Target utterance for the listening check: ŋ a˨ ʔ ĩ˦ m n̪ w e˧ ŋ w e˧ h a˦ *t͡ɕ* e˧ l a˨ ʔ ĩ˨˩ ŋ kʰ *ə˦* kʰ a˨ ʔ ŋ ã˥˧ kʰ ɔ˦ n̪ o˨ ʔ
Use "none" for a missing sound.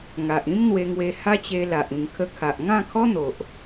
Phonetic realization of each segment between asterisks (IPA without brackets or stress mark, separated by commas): t͡ɕ, ə˧